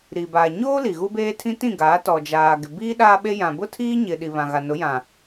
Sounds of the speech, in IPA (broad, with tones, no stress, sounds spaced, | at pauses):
ɾ i˨ b aː˨ ɲ oː˦ l i˨ ɣ u˦ b eː˦ tʰ ĩ˦ t ĩ˦˨ ɡ aː˨˦ t ɔ˨ d͡ʒ aː˨ ɡ ɪ˨ b iː˦ ɗ aː˦ ɓ e˦ j ã˨ b ʊ˦ tʰ iː˦ ɲ ɪ˨ ɗ i˨ β ã˨ ɣ a˨ n ʊ˨˦ j ã˨